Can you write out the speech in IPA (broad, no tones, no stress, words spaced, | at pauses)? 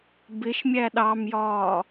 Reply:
bɪʃmʲæ ɗɑmjɒː